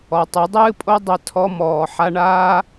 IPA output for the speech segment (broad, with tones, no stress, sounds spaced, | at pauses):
ɔ˨ tˤ ɘ˨˦ dˤ ɨː˦ pʼ o˦ dˤ ɐ˧ tʰ ɔ˧ m ɔː˨ ħ a˧ ɳ aː˦